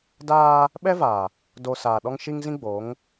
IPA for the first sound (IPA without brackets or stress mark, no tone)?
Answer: d